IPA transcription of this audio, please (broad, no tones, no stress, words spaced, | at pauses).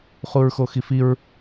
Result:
χuɹxoxifiɹ